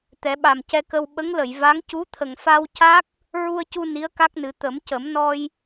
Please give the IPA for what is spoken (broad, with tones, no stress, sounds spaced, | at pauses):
t̪ ɛ˨˩˦ ɓ a˨˩ m c ɛ˧ k ə˧ w ɓ ə˧˥ ŋ l ə˨˩˨ j v a˧˥ ŋ c u˧˥ t̪ʰ ə˨˩ ŋ f a˧ w c a˦˥ k̚ | ɹ u˧ ə̯ c u˧ n i˧˥ ə̯ k a˦˥ k̚ n ɨ˨˩˦ t̪ ə˨˩˦ m c ə˨˩˦ m n ɔ˧ j